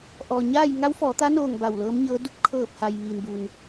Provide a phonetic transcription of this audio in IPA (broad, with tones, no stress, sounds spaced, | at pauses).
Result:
ʔ ɔː˩ ɲ aː˥˨ j ŋ a˧˥ w f ɔː˩˧ t̪ a˧˥ n oː˧˩ ŋ b a˧˩ w l ɤː˧˥ m ɲ ɤː˧˥ d u˧ p̚ kʰ ɤː˧˩ p̚ h a˩ j ʋ iː˩ n b u˩ n